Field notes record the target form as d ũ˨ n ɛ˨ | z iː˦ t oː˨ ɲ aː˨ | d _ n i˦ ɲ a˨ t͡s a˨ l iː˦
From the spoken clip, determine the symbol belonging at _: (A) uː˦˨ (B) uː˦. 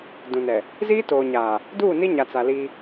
A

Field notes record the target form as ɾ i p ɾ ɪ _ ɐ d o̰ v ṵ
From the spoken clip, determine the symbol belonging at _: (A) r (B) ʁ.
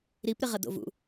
B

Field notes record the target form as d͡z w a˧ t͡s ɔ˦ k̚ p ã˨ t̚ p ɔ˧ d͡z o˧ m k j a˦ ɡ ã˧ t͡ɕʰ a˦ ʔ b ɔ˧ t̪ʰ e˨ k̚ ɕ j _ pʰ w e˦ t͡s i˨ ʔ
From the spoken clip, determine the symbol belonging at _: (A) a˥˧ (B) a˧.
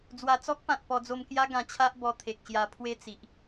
B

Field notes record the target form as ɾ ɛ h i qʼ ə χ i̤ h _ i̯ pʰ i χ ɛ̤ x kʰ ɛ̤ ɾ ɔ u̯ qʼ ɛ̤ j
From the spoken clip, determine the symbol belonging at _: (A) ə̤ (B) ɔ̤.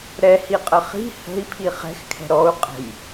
A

